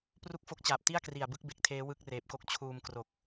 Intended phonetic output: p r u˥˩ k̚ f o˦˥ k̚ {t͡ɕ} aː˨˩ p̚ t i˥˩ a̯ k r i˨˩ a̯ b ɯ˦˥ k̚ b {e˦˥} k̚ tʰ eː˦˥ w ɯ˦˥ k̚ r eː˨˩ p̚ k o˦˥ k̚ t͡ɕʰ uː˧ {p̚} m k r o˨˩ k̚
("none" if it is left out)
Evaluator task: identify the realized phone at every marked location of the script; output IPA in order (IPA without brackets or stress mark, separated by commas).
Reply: t͡ɕ, e˨˩, none